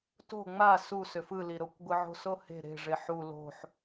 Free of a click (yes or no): yes